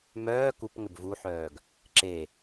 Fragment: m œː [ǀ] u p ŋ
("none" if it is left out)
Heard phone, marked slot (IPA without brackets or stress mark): k